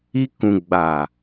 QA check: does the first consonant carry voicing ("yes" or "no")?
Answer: no